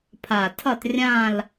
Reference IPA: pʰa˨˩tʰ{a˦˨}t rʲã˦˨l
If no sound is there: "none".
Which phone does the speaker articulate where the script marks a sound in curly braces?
ʌ˦˨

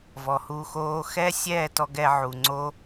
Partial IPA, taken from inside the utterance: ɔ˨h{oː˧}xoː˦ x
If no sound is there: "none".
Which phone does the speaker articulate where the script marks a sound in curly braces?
uː˧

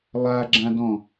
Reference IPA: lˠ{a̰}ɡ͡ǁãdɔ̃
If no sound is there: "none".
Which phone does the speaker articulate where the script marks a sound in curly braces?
a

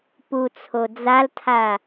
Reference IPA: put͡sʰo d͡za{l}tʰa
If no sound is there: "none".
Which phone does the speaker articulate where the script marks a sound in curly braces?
l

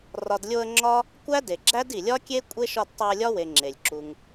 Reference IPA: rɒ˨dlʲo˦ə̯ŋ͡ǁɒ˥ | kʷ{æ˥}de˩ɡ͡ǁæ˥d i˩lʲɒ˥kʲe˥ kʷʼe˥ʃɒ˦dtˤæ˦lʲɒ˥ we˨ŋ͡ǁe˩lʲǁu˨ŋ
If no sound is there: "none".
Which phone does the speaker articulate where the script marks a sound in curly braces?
æ˥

